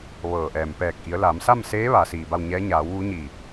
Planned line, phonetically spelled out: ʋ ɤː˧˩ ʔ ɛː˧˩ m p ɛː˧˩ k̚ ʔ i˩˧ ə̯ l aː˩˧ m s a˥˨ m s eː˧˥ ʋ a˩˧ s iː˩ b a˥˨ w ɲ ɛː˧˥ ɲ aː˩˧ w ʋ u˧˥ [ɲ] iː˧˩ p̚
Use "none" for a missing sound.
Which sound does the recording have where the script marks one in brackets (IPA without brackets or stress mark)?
ɲ